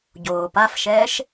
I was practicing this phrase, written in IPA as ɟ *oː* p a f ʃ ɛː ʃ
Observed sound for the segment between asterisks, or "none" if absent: oː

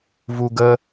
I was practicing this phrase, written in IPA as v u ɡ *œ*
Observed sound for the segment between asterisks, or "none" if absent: ə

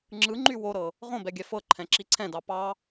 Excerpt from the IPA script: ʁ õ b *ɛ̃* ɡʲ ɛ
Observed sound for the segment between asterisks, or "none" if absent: ɛ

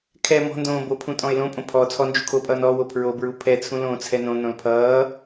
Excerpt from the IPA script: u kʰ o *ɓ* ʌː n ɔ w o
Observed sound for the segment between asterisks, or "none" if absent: pʼ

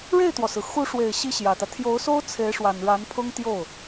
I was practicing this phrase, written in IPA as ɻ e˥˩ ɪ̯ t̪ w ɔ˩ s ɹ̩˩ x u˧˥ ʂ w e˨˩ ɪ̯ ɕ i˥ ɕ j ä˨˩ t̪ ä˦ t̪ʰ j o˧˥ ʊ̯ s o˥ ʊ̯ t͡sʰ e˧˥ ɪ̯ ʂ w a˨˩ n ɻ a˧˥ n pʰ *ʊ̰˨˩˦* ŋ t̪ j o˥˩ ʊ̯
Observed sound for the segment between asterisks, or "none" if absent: ʊ˥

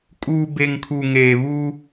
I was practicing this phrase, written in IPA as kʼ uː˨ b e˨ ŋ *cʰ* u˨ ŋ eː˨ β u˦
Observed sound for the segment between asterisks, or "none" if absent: kʰ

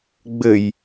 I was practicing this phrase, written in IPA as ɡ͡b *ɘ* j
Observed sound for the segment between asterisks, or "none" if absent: ɘ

